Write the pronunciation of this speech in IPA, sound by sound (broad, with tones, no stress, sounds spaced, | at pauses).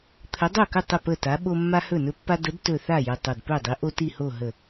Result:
t̪ʰ ə˨˥ dˤ o˥˩ k ɵ˥˩ tˤ ə˥˩ p ə˥˩ t a˨˥ ɓ o˦ mː a˦ h ɵ˥˩ n ɵ˦ pː a˦ d ə˨˥ d t ɵ˧˩ θ a˥˩ j ə˧˩ tˤ o˧˩ d p ɵ˥˩ dˤ i˨˥ ʔ o˦ t i˥˩ h o˥˩ ɦ ə˧˩